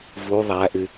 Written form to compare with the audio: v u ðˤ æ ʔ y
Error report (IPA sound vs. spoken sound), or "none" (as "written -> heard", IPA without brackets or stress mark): none